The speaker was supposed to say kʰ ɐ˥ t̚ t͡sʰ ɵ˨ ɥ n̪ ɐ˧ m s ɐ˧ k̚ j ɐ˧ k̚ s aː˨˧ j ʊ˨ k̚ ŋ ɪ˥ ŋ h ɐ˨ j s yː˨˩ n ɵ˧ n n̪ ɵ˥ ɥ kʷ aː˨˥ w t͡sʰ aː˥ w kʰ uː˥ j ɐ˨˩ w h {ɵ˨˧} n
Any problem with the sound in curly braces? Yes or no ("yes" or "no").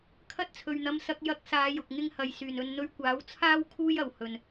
yes